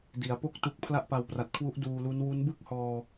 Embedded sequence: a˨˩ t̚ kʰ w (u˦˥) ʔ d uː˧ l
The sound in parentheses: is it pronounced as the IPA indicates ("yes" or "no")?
yes